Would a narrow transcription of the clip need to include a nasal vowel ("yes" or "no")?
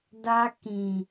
yes